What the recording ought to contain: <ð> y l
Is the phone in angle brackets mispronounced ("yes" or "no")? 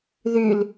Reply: no